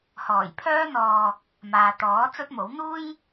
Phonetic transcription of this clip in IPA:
h ɔː˨˩ j pʰ œː˥ n̪ ɔː˧ | m aː˨ t̪ ɔː˨˥ t͡s ɵ˥ t̚ m o˨˥ w n̪ uː˥ j

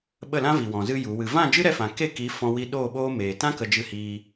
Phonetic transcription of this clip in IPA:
ɓ ə˦˨ l ã˦ v i˨ w ɔ̃˨ z ɨ˧ j u˨˦ w ɨ˧ v ã˦˨ d͡ʒ ɨ˦ ɾ ɛ˧ f ã˨ k e˦˨ k i˨˦ f ɔ̃˦ w i˦ ɗ oː˦˨ ɓ oː˦ m eː˨ t ã˦ k ə˧ d͡ʒ ɨ˧ h iː˧

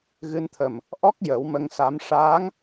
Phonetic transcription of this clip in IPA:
ɣ ɨ˧ n t̪ʰ ə˨˩ m | ʔ ɔ˦˥ k̚ j ə˨˩˦ w m ə˧ ŋ s a˧˥ m ʂ aː˧˥ ŋ

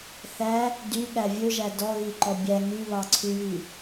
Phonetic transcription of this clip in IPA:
θ æ | d y ɠ æ vʲ ɵ ʒ æ d ɔ ɣ i ǃ ɔ bʲ æ ŋ y β ɑ ǀʰ y j i

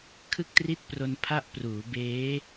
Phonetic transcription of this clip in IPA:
kʰ ɯ˥˩ k̚ t r i˥˩ t̚ p r o˧ n pʰ a˥˩ ʔ p r uː˩˦ b eː˦˥

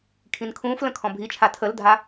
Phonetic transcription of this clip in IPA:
kʰ ĩ n kʰ ũː f l ə̃ kʰ ɔ̃ bʱ i t͡ʃʰ a tʰ ə l dʱ a

